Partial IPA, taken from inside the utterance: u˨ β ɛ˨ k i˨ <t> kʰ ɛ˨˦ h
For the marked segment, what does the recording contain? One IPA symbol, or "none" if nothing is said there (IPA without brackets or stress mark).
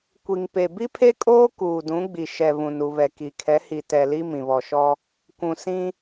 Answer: none